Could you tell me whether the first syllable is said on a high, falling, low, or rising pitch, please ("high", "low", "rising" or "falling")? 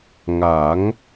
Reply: rising